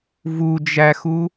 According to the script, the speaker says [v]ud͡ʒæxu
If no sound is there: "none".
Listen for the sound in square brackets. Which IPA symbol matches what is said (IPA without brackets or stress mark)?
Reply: v